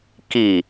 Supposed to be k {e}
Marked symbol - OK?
no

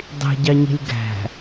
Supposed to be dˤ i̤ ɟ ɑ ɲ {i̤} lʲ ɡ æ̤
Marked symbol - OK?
yes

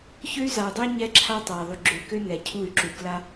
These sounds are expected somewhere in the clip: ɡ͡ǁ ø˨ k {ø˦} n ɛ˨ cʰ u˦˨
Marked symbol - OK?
yes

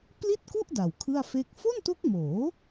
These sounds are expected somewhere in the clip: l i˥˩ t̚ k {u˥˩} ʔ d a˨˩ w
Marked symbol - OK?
yes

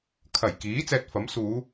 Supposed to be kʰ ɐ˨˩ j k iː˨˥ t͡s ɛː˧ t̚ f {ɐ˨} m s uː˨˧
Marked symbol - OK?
no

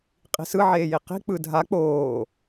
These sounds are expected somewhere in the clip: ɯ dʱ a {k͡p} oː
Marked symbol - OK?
yes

